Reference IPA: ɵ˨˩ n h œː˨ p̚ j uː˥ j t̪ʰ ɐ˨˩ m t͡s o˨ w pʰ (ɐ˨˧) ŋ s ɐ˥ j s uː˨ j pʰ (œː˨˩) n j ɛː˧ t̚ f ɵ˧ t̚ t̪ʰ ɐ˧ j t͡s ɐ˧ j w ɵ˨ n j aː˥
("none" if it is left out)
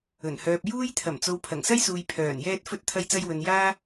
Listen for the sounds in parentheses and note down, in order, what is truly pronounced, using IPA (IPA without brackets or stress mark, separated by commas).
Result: ɐ˨˩, œː˨˩